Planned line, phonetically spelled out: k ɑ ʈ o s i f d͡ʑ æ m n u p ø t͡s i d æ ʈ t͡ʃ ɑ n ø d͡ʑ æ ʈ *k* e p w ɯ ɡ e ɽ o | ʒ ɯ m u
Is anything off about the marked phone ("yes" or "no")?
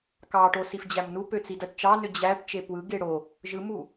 yes